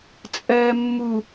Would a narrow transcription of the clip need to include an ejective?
yes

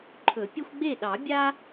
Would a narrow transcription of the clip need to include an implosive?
yes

